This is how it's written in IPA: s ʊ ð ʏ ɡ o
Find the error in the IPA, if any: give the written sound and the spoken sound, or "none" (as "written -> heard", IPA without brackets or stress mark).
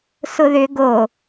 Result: none